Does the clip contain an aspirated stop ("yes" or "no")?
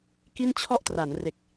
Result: yes